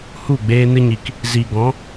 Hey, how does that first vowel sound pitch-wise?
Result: falling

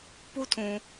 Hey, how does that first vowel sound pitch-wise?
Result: high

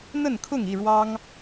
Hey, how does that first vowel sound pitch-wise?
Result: falling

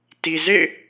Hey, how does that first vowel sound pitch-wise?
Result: low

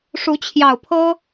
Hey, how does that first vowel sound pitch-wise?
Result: rising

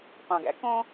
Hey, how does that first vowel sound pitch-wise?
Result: low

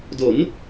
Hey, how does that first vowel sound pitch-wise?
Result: rising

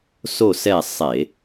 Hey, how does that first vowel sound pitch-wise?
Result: falling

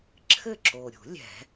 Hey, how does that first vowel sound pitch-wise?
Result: falling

